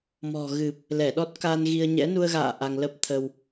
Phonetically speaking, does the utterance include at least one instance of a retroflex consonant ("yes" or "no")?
no